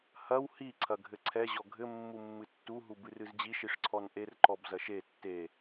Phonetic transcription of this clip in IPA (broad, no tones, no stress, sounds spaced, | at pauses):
h ɐ w h i ǀʰ ɐ ɡʱ ɘ ǀʰ ɛ ʑ ɔ ɡʱ ɘ mː u mː ɨ tː u ɦ u b ɨ r ɨ z d͡ʑ i ʃ i ʂ ǀʰ ɔ n ʔ e r ǃ ɔ b z ɐ ʃ e tː e